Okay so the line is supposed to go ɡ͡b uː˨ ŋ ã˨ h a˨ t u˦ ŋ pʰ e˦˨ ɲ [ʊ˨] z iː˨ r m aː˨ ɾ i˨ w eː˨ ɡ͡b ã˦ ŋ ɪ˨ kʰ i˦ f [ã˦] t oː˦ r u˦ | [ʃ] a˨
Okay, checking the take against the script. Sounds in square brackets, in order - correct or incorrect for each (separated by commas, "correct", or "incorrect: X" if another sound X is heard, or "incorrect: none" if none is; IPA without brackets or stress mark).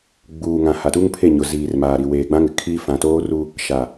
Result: correct, incorrect: ã˨, correct